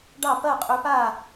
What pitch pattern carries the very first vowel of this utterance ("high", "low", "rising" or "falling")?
falling